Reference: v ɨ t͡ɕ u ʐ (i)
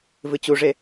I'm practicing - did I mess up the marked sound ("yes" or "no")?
yes